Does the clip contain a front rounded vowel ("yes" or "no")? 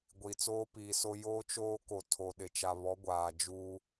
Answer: no